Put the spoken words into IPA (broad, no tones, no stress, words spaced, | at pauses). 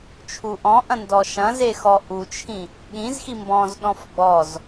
t͡ʃʰuʔɔ̃ʔɐ̃ ndɔʃɐ̃ze xɔʔut͡ʃʰĩ | ɠĩzxi mbɔ̃zɗɔ̃f ɡ͡bɔz